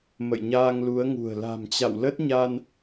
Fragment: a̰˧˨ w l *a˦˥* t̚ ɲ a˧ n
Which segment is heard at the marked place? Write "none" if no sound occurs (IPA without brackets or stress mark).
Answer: ə˦˥